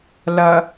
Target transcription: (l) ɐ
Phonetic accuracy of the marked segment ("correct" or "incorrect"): correct